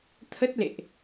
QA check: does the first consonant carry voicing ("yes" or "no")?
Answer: no